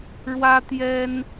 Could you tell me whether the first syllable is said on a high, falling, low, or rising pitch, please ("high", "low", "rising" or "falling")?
high